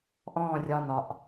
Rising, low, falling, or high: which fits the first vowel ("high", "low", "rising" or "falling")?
falling